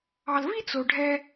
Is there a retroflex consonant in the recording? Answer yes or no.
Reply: yes